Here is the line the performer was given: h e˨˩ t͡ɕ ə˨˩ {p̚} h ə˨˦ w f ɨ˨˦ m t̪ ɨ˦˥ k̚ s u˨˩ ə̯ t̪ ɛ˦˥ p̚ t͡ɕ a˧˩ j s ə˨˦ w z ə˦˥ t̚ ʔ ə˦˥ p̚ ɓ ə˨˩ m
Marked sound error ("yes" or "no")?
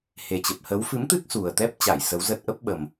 no